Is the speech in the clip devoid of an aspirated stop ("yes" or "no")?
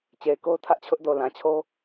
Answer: no